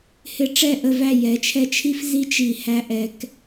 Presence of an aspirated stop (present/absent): present